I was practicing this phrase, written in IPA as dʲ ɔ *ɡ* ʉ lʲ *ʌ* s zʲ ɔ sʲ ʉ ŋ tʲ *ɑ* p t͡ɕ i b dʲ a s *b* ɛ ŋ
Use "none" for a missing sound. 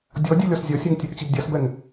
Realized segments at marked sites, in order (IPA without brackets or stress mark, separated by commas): dʲ, ɔ, a, b